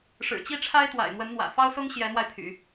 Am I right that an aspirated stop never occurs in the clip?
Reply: no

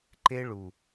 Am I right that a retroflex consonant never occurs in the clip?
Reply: no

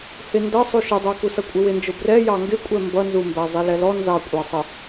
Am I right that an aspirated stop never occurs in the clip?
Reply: yes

